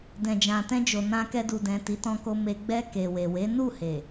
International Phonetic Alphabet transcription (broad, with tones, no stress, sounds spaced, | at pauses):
d ɛ̃˨ d͡ʒ ã˨ t ɛ̃˧ d͡ʒ o˨ n ã˧ k ɛ˧ d u˨ d ɛ̃˨ t i˨˦ t ɔ̃˧ k o˧ m e˧ ɡ͡b ɛ˧ k e˨ w e˨ w e˨˦ n u˦˨ h e˨